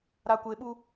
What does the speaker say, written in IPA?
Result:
ɾ a˨ kʷ e˨ ɓ u˦

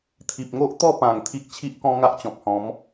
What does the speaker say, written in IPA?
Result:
t̪ʰ i˨ p̚ ŋ o˦ ʔ t̪ ɔ˥˧ p ã˨˩ ŋ t̪ʰ i˦ k̚ t͡ɕʰ i˦ ʔ k ɔ̃˦ ŋ a˦ ʔ t͡ɕ ɔ̃˨ p̚ h ɔ̃˨˦ m

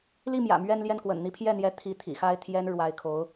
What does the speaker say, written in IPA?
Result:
l i˥˩ m j ä̰˨˩ m ɥ ɛ˥˧ n l j ɛ˥˩ n k w ə̰˨˩ n n̪ i˥˧ pʰ j ɛ˥˩ n̪ j ɛ˧˥ t̪ʰ i˧˥ t̪ʰ ḭ˨˩ x a˥˩ ɪ̯ t̪ʰ j ɛ˥ n ɻ w a˧˥ ɪ̯ kʰ o˧˥ ʊ̯

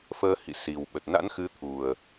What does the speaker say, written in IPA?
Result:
f əː˧ h ḭ˧˨ s i˨˩ w ɓ ə˨˩ t̚ n a̰˧˥ n x ɨ˨˦ t̪ʰ u˨˩ ə̯

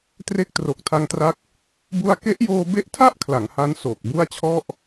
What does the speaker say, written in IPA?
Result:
t r e˦˥ k̚ t r o˨˩ k̚ tʰ a˧ ŋ t r a˦˥ k̚ | b u˥˩ a̯ k e˦˥ ʔ j oː˧ b e˦˥ ʔ tʰ a˥˩ ʔ kʰ l a˩˦ ŋ h a˦˥ n s oː˨˩ k̚ b u˥˩ a̯ t͡ɕʰ ɔ˥˩ ʔ

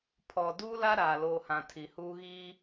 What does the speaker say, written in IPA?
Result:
pʰ ɔ˨ d uː˦ l a˦ ɾ aː˨ l oː˨ h ã˨ tʰ i˨ h uː˦ ɣ iː˦

